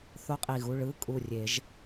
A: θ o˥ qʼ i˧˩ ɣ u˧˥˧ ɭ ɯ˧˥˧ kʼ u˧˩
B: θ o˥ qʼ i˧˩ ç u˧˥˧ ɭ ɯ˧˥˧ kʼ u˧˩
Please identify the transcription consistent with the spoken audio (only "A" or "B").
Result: A